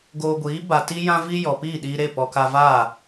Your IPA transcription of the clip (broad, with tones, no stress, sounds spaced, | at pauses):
ɡ oː˧ ɡʷ iː˨˦ b a˧ t i˦ j ã˦ v i˦ j ɔ˨ p iː˦˨ ɗ iː˧ ɾ e˦˨ p ɔ˧ k a˧ v aː˦˨